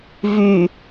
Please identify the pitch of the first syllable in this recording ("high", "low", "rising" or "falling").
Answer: low